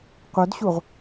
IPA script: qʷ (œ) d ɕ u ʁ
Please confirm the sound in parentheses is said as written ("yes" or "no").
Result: yes